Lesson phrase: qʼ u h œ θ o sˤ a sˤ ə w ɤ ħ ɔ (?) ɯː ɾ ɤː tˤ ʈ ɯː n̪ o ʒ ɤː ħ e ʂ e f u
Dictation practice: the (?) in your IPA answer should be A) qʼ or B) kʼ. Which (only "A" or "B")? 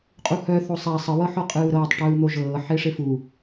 A